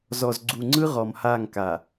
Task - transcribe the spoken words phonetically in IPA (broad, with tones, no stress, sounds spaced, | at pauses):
z ɔ˨ z ɡ͡ǀ u˨ ŋ͡ǀ ɯ˦ ʁ ɔ˨ m h a˦˨ ŋ k a˨